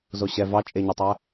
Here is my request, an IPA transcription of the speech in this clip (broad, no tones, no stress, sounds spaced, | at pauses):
z o ɕ ɛ v ɑ t͡ʃʼ e ɲ ɔ tˤ æ